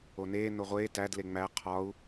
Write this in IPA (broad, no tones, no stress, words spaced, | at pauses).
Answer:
oneː noʁʷeː tæd leŋ͡mæ qʰɒu̯